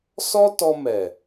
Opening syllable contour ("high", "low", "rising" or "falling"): high